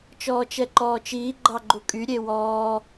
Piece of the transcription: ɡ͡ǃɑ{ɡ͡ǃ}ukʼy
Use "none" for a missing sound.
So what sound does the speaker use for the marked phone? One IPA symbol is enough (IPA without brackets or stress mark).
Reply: ɡ͡ǃ